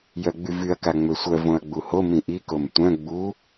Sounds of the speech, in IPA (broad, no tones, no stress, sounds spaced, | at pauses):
j œ ɡ͡b y v y ɐ̯ k a ŋ͡m ø sʷ œ v õ ɐ̯ ɡ͡b u h o m ĩ ʔ i k o m tʷ œ̃ ɡ͡b u